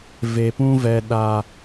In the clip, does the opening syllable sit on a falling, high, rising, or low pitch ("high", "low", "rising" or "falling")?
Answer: low